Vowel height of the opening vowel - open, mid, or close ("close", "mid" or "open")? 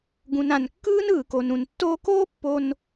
close